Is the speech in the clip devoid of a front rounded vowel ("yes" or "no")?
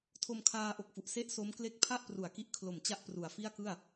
yes